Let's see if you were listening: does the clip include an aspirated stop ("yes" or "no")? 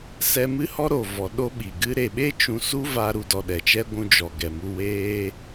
no